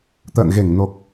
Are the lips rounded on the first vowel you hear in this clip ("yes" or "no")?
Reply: no